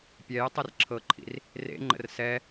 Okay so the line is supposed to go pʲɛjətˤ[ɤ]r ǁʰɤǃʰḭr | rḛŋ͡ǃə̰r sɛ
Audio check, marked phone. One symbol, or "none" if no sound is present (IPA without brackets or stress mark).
ɤ